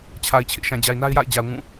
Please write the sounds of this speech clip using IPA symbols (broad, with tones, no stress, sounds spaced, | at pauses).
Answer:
t͡ɕʰ a˨ ɪ̯ t͡ɕʰ ɪ˦ ʔ ʃ ã˨ d͡ʑ a˨ ɪ̯ n a˦ ɪ̯ j a̰˦˨ ɪ̯ d͡ʑ a˨ ʊ̯ ŋ ũ˦˨